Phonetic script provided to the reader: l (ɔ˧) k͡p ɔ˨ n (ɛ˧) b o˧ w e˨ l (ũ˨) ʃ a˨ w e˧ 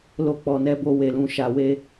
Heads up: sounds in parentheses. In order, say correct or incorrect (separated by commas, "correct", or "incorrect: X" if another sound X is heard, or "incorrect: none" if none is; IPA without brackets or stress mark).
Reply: incorrect: o˧, correct, correct